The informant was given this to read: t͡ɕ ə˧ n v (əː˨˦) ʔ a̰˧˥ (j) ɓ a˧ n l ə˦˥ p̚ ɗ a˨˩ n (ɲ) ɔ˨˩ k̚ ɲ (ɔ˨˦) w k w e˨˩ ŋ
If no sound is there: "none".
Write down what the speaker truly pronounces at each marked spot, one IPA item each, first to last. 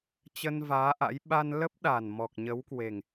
aː˨˦, j, m, ə˨˦

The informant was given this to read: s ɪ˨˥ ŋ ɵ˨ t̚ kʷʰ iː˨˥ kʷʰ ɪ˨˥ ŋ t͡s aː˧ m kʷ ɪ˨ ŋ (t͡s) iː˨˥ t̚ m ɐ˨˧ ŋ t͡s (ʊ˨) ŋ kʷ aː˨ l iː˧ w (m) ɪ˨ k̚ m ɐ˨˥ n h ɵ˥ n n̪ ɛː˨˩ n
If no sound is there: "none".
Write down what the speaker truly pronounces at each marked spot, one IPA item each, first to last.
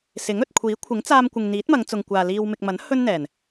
n̪, ʊ˨, m

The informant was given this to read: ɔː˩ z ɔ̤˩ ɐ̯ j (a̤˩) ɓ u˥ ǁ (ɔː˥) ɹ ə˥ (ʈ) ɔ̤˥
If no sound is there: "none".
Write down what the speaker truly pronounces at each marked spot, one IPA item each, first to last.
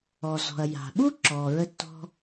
a̤˩, ɔː˩, tː

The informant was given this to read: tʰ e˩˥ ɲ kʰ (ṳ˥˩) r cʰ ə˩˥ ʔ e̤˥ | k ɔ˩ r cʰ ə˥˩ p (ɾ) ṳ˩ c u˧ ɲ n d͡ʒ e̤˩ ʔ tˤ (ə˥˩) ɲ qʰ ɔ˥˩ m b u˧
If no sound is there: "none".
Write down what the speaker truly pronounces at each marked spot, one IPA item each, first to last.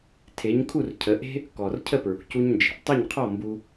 u˥˩, ɹ, ə˥˩

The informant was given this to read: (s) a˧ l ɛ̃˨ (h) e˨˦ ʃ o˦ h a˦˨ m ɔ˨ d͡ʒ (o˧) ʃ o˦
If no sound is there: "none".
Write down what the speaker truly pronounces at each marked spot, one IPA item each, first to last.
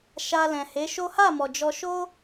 ʃ, h, ɔ˧

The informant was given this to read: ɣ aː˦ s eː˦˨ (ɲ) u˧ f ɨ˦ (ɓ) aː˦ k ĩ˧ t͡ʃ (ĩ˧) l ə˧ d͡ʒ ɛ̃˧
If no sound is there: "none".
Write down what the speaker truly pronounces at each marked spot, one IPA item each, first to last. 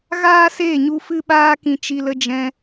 ɲ, ɓ, i˧

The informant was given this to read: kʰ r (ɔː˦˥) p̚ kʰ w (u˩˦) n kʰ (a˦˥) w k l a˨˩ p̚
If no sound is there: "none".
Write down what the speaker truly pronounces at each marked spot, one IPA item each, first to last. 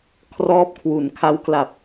ɔː˦˥, u˩˦, a˦˥

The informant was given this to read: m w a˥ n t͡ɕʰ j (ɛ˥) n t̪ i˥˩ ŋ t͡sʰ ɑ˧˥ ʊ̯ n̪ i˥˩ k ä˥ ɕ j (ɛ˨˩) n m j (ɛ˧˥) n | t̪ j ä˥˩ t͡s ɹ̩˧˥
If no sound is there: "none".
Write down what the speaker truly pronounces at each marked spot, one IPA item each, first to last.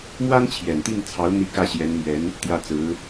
ɛ˨˩, ɛ˧˥, ɛ˧˥

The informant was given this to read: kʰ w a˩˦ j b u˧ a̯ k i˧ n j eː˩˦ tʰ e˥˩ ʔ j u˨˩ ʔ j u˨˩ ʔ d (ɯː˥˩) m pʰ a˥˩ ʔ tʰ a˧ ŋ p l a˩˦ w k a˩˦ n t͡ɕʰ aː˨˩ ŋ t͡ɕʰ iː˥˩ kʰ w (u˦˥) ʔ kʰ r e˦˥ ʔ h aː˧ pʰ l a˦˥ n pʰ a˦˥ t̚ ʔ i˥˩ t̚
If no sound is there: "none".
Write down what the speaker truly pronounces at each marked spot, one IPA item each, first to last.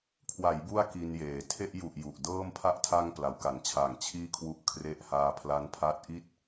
ɤː˥˩, u˦˥

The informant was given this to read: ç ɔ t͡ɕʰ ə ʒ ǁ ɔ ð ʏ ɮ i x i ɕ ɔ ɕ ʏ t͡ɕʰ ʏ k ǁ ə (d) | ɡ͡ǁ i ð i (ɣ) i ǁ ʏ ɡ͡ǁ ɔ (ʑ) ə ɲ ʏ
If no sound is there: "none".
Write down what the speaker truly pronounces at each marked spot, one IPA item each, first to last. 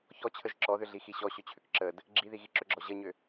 d, ɣ, ʑ

